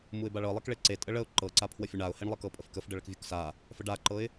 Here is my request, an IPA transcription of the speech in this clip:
m u ɪ̯ b a ɭ ɤ lˠ ɛ k ɭ e ǀ e tʼ ə ɭ ə ʊ̯ ǃ ɤ ǀ a pʰ w ə fʲ ə ɳ a ʊ̯ h e ɳ lˠ ə k ɤ pʼ ə f k ə f ɖ ə ɭ ə k vʲ u k s a | f ə ɖ a ǃ ɤ ɪ̯

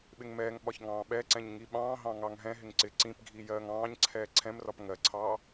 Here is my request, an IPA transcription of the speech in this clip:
ɓ ɪ ŋ m ɛː ŋ ɓ ɒ ç ŋ ɑ̃ː ɓ ɛ ǀ ɛ̃ ɲ ŋ i ɓ ɑ̃ː ɦ ɑ̃ ŋ ɑ ŋ ɦ ɛ̃ ɦ ɪ ŋ ǀ ɪ ǀ ĩ p ɡʱ i j ɜː ŋ ɑ̃ː ɲ ǀʰ ɛː ǀʰ ɛ̃ m r ɒ p ŋ ɜ ǀʰ ɑː

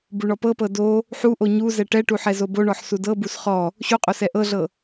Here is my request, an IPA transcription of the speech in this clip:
b u ɳ ɔ p ɤ p ɤ d o | ħ u ʔ o ɲ u z ɛ ʈ ɛ ʈ u ħ ɛ z o b o ɳ ɔ ħ s u d ɤ b u s χ ɔ | ɕ u qʼ o s ɛ ʔ ɤ ɮ ɤ

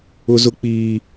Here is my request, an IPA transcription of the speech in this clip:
ʊ˦ z ʊ˦ k͡p iː˦

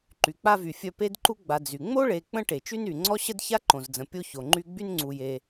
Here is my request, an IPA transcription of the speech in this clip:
ǃ y˩ k͡p a˦ v y˩ fʲ œ˦ p e˥ d ǃ u˥ ɡ͡b a˨ d͡z y˩ ŋ͡m o˥ ɭ e˨ k͡p ə̃˥ ʈ e˩ t͡ʃ y˥ n y˩ ŋ͡ǀ ɔ˥ ɕ ə˥ d ç a˥ ǃ õ˩ z d͡z ə̃˩ pʲ o˦ ç o˩ ŋ͡ǃ y˦ ɡ͡b y˥ n ŋ͡ǀ u˨ j e˨

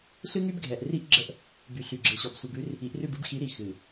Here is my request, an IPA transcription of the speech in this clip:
ɬ ɨ˦ ŋ y˦ b ɡʱ ɛ˨ ʔ r i˦ ʔ ɡ͡ǁ ə˦ ʔ | b y˨ ɬ y˨ ɡ͡ǁ ɨ˨ ɕ ɔ˨ b sʷ i˨ b ʉ˦ r | i˨˦ ʔ r ʉ˦˨ b ɨ˦ b x i˨˦ ɾ i˨ x ɨ˨

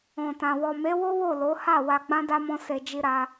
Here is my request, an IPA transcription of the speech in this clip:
ɔ̃˨ t ã˨ w ɔ˨ m e˨˦ w o˦ w o˦˨ l o˨˦ h a˦˨ w a˧ ɡ͡b ã˦ d a˦ m ɔ̃˦ s e˧ d͡ʒ i˦ ɾ a˦

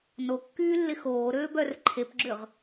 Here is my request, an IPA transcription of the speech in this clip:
n o kː yː lː ɪ x oː ɾ øː b œ r ǃʰ e p ɡ͡ǁ ʏ ʁ

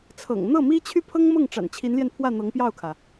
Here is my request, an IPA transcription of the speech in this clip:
t͡sʰ ɤ̰˨˩ ŋ n̪ ɤ˥˩ m i˥ t͡ɕʰ y˥ pʰ ɤ˥ ŋ m ɤ˥˩ ŋ ʈ͡ʂ a̰˨˩ n t͡ɕʰ i˧˥ n l j ɛ˧ n pʰ w ä˥˩ n̪ ɤ˧˥ ŋ p j ɑ˥˩ ʊ̯ kʰ ä˩

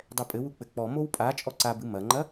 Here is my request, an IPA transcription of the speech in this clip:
dˤ ɛ pʼ ɘ w u k͡p ɘ k͡p ɔ m o w pʼ a t͡ʃʼ ɔ ǀ a b ɨ m ɐ ŋ͡ǃ ɐ

